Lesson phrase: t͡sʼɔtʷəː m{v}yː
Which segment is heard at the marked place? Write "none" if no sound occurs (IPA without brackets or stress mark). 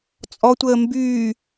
b